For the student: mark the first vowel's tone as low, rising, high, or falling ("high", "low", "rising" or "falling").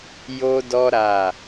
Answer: high